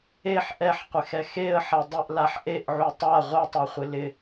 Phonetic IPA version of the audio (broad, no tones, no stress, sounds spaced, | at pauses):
e ħ ʔ ɛ ħ qʷ ɪ x ɛ x e ə̯ ħ a dˤ ɪ ʔ l a ħ ʔ e ʔ ʕ u tˤ a ʁʷ ɛ tˤ a χʷ ɪ l ɪ